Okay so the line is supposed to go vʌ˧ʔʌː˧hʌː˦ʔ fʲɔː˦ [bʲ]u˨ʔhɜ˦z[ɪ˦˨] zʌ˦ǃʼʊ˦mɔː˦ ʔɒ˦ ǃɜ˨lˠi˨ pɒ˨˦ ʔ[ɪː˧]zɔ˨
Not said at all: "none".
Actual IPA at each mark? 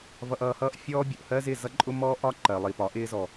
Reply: bʲ, ɪ˦˨, ɪː˧

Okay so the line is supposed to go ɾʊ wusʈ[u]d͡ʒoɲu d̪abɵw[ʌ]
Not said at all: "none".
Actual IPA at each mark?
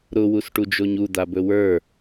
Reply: u, ə˞

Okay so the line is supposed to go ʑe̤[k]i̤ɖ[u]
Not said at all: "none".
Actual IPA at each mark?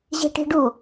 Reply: ʈ, u

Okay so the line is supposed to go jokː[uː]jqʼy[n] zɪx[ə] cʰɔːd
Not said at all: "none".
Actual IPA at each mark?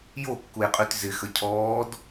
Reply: u, t, ə

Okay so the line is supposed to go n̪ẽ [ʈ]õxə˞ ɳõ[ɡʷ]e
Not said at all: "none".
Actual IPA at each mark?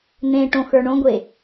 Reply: ʈ, ɡʷ

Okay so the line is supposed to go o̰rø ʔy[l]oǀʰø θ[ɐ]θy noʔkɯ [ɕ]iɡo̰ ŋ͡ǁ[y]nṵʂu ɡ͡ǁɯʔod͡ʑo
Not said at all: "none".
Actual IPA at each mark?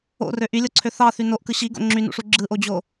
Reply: lʲ, ɑ, ɕ, y

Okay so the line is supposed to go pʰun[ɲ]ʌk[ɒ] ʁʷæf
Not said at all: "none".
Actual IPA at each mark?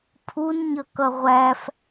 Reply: ɲ, ʌ

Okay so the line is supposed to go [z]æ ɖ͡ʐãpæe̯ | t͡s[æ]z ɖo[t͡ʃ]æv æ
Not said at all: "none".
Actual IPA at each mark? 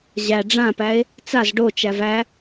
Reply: ʑ, a, t͡ʃ

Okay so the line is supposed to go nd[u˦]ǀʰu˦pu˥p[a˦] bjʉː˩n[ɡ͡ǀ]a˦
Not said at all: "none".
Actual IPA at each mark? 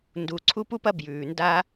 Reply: u˨, ɐ˦, d

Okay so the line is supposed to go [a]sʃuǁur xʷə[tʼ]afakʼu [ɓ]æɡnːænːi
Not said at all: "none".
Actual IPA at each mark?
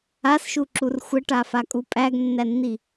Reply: a, ʈ, pʼ

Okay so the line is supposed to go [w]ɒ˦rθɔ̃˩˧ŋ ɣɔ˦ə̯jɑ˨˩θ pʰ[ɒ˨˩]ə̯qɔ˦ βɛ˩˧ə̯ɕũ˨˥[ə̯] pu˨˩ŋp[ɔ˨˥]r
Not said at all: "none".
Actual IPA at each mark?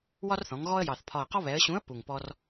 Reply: w, ɒ˨˩, ə̯, ɔ˦

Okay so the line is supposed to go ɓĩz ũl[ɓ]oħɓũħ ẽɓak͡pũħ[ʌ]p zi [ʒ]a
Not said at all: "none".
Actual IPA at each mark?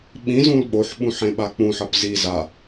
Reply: ɓ, ʌ, z

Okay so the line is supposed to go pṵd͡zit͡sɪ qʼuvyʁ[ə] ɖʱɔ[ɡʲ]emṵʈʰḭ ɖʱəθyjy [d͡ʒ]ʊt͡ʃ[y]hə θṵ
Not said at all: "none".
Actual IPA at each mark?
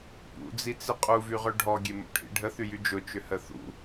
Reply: œ, ɡʲ, d͡ʒ, ʏ

